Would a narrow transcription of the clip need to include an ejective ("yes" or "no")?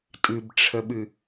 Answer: yes